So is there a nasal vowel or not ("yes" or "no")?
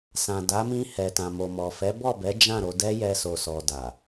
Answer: yes